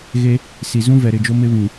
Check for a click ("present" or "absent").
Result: absent